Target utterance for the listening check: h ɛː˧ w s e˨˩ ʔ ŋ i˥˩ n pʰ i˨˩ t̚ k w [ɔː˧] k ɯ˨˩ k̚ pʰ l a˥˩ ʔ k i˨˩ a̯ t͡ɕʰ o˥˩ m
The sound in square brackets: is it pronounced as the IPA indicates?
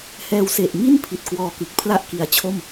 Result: yes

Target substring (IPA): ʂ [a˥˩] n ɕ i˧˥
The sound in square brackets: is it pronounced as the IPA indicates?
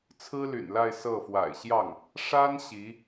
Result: no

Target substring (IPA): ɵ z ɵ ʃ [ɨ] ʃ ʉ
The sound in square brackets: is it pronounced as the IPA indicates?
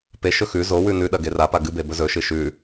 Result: yes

